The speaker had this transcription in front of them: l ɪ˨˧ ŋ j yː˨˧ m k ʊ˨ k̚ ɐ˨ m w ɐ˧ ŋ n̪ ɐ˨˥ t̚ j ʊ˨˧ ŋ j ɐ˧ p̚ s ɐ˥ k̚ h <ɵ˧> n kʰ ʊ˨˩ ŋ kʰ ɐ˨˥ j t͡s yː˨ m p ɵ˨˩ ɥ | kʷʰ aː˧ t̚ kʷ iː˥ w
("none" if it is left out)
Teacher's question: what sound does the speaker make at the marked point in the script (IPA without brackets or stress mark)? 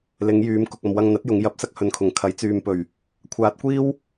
ɵ˨˧